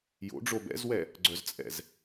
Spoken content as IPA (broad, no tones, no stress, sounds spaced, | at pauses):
j o̰ ɖ͡ʐ o b ɛ̰ z w ɛ | ɡ͡ǀ œ z t͡sʼ ɛ̰ z